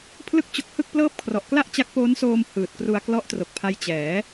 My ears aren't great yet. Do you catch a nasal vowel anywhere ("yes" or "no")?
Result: no